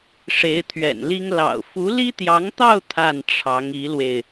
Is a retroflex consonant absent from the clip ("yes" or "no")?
no